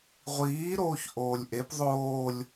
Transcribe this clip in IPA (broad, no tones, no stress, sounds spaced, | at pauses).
ʁʷ iː ɾ oː ç ʔ oː lʲ ʔ e p ðˤ oː lʲ